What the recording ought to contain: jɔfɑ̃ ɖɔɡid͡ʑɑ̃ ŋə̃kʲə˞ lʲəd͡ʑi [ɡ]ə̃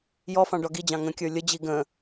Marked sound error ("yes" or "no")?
no